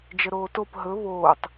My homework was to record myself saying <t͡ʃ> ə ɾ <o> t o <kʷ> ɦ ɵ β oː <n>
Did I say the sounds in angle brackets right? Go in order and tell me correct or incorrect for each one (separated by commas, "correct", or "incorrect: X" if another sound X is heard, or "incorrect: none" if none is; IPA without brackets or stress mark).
incorrect: d͡ʒ, incorrect: oː, incorrect: p, incorrect: tˤ